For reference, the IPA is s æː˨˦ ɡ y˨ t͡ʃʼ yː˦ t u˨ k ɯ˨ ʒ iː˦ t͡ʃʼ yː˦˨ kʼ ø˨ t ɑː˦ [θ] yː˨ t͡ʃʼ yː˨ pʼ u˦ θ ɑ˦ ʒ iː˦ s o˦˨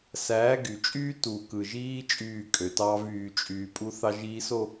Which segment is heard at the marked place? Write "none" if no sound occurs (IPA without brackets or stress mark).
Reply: v